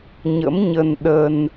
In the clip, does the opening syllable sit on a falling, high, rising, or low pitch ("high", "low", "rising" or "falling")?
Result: rising